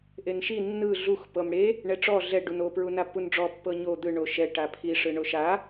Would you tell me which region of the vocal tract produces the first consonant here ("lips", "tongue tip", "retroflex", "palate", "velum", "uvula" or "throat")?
throat